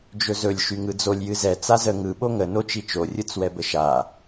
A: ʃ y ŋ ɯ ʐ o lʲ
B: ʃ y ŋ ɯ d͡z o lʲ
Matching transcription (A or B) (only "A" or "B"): B